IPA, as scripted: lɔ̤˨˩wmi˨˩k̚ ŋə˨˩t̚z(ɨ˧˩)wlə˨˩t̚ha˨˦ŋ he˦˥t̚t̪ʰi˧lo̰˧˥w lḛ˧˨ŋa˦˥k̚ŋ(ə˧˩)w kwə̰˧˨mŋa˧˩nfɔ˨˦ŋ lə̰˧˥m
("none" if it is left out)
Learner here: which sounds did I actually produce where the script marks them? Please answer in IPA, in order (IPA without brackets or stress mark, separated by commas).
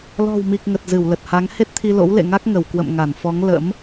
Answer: ɨ˧˩, ə˧˩